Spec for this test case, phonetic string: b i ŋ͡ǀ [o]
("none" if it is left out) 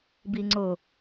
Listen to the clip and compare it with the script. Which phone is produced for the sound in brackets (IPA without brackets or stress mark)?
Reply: o